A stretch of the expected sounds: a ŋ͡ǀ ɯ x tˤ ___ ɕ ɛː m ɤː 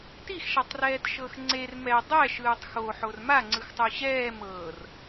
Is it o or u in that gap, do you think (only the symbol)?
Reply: u